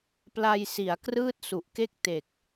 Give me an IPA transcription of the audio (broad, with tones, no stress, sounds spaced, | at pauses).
p l a˧ j s i˩˦ a̯ k r ɯː˥˩ t̚ s u˨˩ ʔ k e˥˩ k̚ t e˨˩ k̚